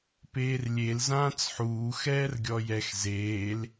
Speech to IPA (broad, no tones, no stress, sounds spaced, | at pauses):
p eː r lʲ e l z ãː t͡s ħ uː x ɛː r ɡʲ ɔ j ɛ x z eː l